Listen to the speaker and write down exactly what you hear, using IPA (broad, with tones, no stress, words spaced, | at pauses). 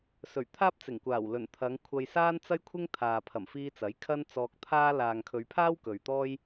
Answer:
sɵ˨˩ɥt̪ʰaː˥p̚t͡sɪ˨˩ŋ kʷaː˨˩wlɵ˨˩n t̪ʰɐ˨˧ŋkʷʰɐ˧jsaː˥n t͡sɐ˥jkʷʰɪ˥ŋ t̪ʰaː˨ pʰɐ˨˩mfiː˧t͡sɐ˨˥j kʰɐ˥n t͡sɔː˧k̚t̪ʰaː˥ laː˨ŋkʰɵ˨˧ɥpʰaː˥w kɵ˨ɥt̪ɔː˥j